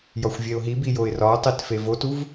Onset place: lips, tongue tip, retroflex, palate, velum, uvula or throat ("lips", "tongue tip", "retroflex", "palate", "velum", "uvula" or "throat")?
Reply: palate